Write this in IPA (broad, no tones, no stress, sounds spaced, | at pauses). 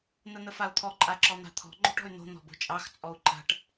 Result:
n̪ ə n̪ ə f a u̯ t̪ʰ ɔ ǃʼ a ǁ ɔ n̪ a̤ t̪ʰ ɔ̤ ŋ͡ǃ o̤ ʈ ɔ̤ y̯ n̪ o̤ n̪ ɔ̤ b o̤ t͡ʃʼ ɑ x t͡sʼ ɔ u̯ ǃ a̤ ʈ